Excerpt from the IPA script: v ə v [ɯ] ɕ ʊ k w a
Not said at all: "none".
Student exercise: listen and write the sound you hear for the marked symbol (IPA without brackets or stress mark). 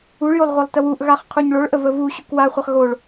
u